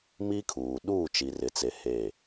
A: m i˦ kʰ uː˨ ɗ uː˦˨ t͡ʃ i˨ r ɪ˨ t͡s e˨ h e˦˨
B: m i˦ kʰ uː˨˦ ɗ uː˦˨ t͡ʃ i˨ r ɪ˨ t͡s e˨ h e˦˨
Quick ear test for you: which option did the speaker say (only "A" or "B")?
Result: A